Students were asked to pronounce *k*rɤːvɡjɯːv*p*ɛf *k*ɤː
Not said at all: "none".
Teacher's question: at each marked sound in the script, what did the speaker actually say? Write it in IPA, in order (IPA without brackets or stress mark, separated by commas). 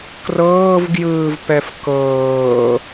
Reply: k, p, k